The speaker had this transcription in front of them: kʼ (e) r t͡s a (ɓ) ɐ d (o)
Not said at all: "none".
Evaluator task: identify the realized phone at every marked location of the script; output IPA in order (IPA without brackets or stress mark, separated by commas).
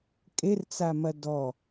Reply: e, m, ɔ